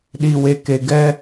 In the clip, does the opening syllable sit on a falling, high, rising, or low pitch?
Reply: low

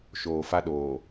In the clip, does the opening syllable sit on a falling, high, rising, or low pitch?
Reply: low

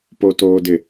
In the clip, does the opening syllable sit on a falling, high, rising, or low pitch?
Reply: low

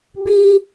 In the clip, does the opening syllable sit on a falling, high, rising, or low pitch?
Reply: high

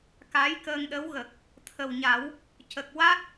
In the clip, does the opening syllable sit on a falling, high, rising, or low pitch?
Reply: rising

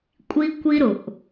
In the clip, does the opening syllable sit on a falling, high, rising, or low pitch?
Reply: high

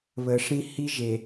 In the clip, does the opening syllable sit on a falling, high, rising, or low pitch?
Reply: low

